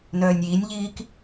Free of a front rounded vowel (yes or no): no